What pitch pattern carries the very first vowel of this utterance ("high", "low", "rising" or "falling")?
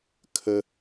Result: high